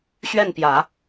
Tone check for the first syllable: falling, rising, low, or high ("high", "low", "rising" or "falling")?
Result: falling